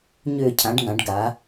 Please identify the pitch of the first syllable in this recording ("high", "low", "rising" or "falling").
falling